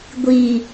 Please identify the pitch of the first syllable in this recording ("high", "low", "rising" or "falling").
low